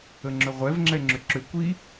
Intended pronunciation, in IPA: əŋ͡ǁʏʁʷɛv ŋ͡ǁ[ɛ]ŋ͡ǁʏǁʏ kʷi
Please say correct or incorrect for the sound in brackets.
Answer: correct